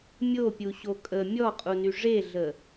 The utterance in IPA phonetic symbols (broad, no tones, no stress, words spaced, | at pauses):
mʲopʲu ɕokʼə mʲɔqʼuny ʐeɮə